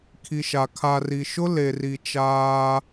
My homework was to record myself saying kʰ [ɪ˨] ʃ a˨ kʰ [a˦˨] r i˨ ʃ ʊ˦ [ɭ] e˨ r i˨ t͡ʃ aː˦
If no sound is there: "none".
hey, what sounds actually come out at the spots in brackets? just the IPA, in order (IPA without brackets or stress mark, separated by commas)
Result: i˨, a˨, l